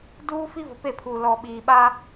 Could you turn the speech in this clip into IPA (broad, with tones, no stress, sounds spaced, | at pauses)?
d uː˦ f i˦ v ʊ˨ p e˦˨ pʰ uː˨ l ɔ˨ ɓ iː˨ ɓ aː˦